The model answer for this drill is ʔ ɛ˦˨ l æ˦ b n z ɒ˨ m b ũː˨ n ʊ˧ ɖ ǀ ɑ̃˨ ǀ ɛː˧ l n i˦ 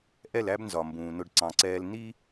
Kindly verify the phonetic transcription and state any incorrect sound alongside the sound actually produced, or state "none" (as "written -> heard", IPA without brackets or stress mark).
none